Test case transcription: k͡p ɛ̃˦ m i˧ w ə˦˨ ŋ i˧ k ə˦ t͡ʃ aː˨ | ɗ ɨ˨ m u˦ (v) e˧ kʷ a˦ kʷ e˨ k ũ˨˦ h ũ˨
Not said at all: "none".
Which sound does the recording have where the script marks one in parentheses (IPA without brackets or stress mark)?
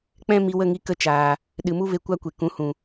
v